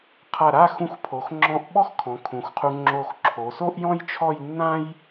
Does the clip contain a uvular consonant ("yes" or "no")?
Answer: yes